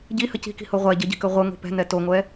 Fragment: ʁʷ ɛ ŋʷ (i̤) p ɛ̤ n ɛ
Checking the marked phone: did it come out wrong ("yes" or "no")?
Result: no